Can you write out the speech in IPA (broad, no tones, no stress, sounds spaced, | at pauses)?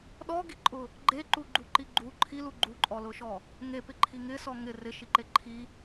ɗ ɔ ɡ i ǃʼ ʊ | ɡ͡ǃ e ǃ u ɡ͡ǃ u ǃ i ɡ͡ǃ u ǃʰ i l u ɡ͡ǃ u ǃʼ ɔ l ʊ ʃ ɔ | ŋ e p ɪ ǃʰ i ŋ ɪ s ɔ ŋ ɪ r ɪ ʃ i ǃ e ǃʰ i